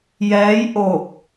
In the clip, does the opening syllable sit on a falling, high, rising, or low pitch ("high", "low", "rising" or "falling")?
rising